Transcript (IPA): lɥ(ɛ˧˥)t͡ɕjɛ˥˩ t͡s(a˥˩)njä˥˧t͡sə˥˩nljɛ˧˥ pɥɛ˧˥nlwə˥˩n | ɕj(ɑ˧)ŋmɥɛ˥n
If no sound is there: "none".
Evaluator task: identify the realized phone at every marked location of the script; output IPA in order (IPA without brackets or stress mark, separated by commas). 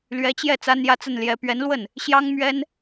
ɛ˧˥, a˥, ɑ˥